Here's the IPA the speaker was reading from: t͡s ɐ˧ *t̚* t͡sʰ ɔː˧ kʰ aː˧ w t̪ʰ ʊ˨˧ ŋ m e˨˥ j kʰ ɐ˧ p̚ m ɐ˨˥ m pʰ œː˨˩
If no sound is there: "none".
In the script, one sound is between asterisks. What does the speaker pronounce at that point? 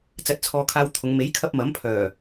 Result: t̚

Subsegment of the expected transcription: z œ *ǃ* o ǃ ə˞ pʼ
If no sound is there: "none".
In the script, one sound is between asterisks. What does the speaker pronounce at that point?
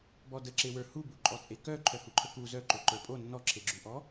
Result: ǃ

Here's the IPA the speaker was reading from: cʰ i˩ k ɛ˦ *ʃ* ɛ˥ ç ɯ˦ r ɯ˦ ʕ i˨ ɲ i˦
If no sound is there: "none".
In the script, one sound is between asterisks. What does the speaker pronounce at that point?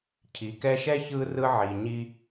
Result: ʃ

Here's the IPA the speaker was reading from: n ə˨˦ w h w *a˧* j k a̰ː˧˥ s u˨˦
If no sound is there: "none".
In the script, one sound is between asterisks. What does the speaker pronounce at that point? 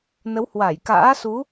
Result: a˧˩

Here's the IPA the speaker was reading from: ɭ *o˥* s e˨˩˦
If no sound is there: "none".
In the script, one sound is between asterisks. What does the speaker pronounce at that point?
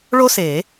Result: o˥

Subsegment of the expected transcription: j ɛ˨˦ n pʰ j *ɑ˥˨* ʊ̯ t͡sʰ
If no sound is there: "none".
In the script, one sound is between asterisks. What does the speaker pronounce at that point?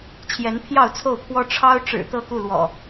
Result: ɑ˥˨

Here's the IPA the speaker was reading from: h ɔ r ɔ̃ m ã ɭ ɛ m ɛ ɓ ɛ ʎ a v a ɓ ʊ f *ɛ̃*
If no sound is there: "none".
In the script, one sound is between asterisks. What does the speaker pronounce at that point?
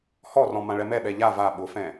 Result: ɛ̃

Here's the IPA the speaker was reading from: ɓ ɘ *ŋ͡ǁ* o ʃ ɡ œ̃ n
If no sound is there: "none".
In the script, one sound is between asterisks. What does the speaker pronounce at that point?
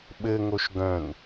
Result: ŋ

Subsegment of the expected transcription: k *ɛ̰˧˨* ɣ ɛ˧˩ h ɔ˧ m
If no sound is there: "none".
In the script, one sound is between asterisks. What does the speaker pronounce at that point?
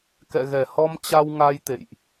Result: ɛ̰˧˨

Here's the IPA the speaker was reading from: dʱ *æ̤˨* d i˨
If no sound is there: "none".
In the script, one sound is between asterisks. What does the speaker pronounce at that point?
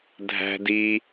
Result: æ̤˨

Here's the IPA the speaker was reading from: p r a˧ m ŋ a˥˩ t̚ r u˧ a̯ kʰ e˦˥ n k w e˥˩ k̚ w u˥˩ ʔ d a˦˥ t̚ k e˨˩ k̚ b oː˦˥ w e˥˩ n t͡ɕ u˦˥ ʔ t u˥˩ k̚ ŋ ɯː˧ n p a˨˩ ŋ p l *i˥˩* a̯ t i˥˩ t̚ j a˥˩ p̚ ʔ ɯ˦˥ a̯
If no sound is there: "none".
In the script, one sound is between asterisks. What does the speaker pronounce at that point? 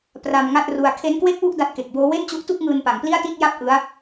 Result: i˥˩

